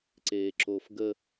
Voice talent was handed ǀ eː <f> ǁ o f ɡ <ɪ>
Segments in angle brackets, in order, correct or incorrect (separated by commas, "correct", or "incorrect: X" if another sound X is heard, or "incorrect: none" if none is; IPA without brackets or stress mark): incorrect: none, incorrect: ə